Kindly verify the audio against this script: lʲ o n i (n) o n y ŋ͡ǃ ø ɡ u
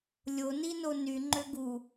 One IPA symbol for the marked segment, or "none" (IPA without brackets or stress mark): n